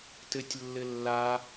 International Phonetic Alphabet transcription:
t ɘ tʲ lː ɘ lː a

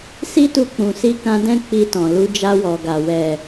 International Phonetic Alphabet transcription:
s i˦ t u˧ k͡p ũ˨ s i˧ k ã˧ d ɛ̃˦ k͡p i˧ t ɔ̃˨ l u˧ d͡ʒ a˧ w ɔ˨ ɡ a˨ w ɛ˨

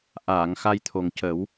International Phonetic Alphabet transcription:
ʔ aː˨˩˨ ŋ x a˧ j t̪ʰ o˨˩ ŋ c ə˨˩˦ w

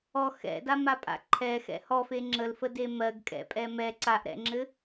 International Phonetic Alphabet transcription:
ɔ x ɛ̰ d a m a pʼ a̰ ǃʰ ɛ x ɛ̰ h ɔ f e ŋ͡ǁ ə l f ə d e m ɜ ɡ kʼ ɛ̰ pʼ ɛ m ɛ ǀ a ʔ ɾ ɛ̰ ŋ͡ǁ ɘ

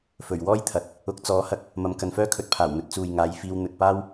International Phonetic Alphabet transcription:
f ɵ˨˩ ɥ w ɔː˥ j t̪ʰ ɐ˨ t̚ | ʊ˨ k̚ t͡s ɔː˨˥ h ɐ˧ k̚ | m ɐ˨ m k ɐ˨ n f œː˥ kʰ ɵ˨˥ t̚ pʰ aː˨˩ w n̪ ɵ˨˥ t̚ t͡s uː˨ j ŋ aː˨˧ j f iː˧ w n̪ ɵ˨ t̚ p aː˥ w

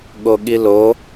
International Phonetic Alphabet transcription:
ɠ o ɠ i l o

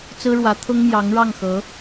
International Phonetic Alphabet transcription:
t͡s ɹ̩˥ ɻ w ä˧˥ t̪ʰ ʊ˥ ŋ m j ɑ˧˥ ŋ ɻ ɑ˥˩ ŋ x ɤ˧˥

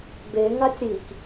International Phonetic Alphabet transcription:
b e ŋ a tʲ ɾ i k

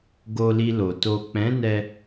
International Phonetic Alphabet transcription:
ɡ o˧ l i˧ l o˨ t o˨ k͡p ɛ̃˨˦ n ɛ˧

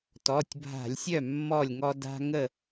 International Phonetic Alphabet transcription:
t ɔ˩˧˩ tʲ bʱ a̤˧˩˧ lʲ sʲ œ˥˩ mː ɔ˥˩ lʲ ŋ ɔ˦ d a̤˦ ŋ ə˥˩

